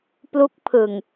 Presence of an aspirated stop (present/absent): present